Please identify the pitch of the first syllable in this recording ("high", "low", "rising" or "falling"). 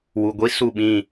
low